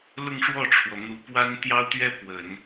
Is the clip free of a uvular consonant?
yes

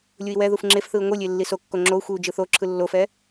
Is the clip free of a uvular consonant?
yes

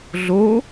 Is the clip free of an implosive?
yes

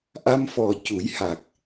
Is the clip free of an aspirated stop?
yes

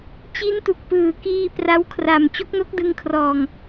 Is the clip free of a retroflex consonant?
yes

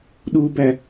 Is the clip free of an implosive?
no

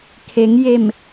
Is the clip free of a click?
yes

